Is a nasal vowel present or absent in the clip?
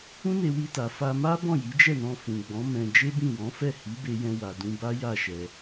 present